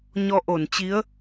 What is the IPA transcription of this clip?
ɲɔ˧ ʔo˧˩nt͡ɕi˨˦ə̯

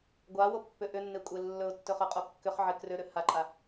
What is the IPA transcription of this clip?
ɡʷawopːʏ ʔʏnːekʷʼe lːɵʊ̯tːɵχʏqʼo kːʏχʕɪ krʏɾʏ haǃʼa

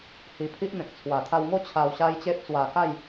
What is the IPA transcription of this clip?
hi˧pʰi˦ʔn̪ẽ˨k̚ t͡sʰwa˨˩t̪ʰa˧wŋo˥˧ t͡ɕʰa˧w ɕa˦jt͡ɕe˦p̚t͡swa˧ ka˥˧j

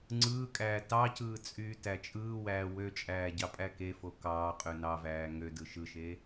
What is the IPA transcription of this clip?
ŋ͡ǀɯːkʼæː tɑcɯː t͡sʼyːtæt͡ʃʼɯːwæː wøt͡ʃʼæː ɟɑpʼækefo kɑːqʼø nɑvæː ŋødɯ ʃɯʃe

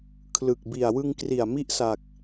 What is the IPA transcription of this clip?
kʰlɯ˨˩k̚ bi˨˩a̯wɯ˧ŋkri˨˩a̯ mi˥˩ʔsa˨˩k̚

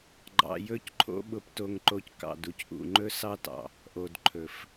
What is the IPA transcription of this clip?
ɡ͡ǃɑ̰˧jɵ˦cǃʰo̰˦ɓʊ˧p to˧ŋǃo˧c kɑ̰˨d u˧cʔṵ˨ŋ͡ǃɵ˦ sɑ˦tɑ̰˨ | ʔo˨dǃʰɵ˨f

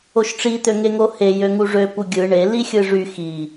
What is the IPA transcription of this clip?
oʃʈ͡ʂi t̪øŋeŋohe jøŋuʐø puɡʲɯ ɳe lixʲɯʐy xi

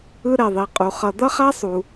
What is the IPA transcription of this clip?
ɯ˥ɾɛ˨ðˤi˨qʼu˨ χʌ˨ d̪ʌ˥χa˥ sˤu˨

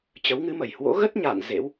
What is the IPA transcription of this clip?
t͡ɕə˨˦wŋɨ˨˦mə˨˩j hwo̰˧˥ɣə˦˥t̚ɲa̰ː˧˨n zḛ˧˥w

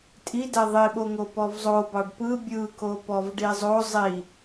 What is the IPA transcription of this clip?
tʼidɛ ðˤiɓoŋo pɔvzˤobɑɖ pɯ bʲɯ kopɔvɖizˤo zˤi

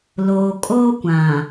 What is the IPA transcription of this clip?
loː˨kʼoː˦kʷã˨

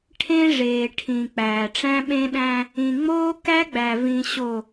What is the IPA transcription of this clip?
ʈʰẽ˦ ʐeː˨ʈʰĩ˨ k͡pæː˨ʈ͡ʂæ̃˦ɓẽ˦ɗæ̃˦ | ĩ˨ŋ͡moː˦ kæ˦ɡ͡bæ˨vĩ˨ɕo˨

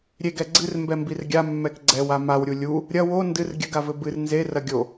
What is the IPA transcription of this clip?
ɾʲeɡɛ ɡ͡ǀɨrmbɛmbir ɡʲamːɛk ɡ͡ǀɛwa mawɾʲu lʲu | ɾʲɐ wo ndɨr ɡʲɘɡavɘ bɨr nzerɐ ɡʲo

